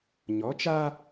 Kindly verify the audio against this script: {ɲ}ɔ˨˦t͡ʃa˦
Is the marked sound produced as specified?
yes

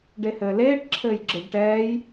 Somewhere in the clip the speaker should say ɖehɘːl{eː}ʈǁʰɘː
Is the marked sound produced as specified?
yes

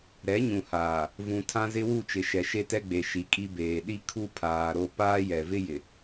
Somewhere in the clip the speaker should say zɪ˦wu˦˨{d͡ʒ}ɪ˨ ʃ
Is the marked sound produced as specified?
no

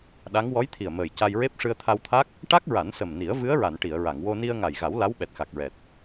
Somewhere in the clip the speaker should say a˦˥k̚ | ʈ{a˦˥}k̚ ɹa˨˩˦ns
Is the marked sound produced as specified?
yes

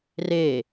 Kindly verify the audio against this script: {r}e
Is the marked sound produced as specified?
yes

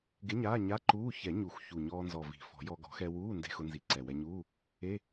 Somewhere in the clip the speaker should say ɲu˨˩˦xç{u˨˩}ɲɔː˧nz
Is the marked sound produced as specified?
yes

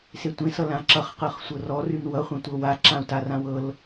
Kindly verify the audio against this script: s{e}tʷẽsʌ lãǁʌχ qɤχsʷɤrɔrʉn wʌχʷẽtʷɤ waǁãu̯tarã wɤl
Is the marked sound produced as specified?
yes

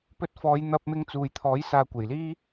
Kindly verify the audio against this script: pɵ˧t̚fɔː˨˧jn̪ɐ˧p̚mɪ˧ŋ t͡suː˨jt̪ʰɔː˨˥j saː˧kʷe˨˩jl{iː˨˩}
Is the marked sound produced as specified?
no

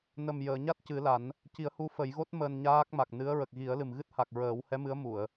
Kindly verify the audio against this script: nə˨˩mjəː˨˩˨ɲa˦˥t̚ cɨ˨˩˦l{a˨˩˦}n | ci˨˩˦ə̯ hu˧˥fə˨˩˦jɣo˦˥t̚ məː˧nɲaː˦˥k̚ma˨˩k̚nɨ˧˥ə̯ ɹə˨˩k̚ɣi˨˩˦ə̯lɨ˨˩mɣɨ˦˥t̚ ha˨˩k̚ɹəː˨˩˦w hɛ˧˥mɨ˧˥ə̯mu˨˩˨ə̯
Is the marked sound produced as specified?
yes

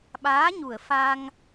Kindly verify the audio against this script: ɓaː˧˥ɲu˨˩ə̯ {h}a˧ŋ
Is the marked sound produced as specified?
no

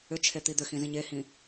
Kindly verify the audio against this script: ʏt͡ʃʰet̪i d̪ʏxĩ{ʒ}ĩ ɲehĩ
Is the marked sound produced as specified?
no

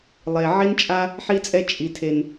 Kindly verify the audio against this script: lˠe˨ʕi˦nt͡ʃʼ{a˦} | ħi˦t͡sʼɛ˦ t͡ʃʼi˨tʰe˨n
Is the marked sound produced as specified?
yes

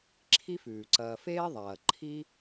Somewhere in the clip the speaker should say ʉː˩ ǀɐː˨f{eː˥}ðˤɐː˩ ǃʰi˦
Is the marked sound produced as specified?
yes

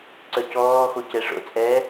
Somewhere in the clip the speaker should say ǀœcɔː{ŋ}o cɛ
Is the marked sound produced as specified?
no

